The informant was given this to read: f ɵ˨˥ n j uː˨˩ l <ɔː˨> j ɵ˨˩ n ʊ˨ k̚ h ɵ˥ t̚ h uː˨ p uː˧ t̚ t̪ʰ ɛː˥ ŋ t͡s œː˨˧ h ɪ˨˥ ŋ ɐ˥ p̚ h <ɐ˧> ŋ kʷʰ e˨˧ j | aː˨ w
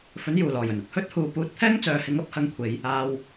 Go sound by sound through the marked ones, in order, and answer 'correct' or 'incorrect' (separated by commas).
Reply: incorrect, correct